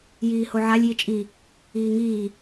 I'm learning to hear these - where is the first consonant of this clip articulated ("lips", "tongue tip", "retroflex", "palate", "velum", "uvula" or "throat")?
palate